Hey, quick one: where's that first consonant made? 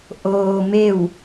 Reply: throat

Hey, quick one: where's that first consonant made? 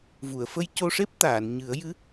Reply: lips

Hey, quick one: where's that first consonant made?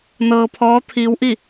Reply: tongue tip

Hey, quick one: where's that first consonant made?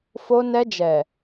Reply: lips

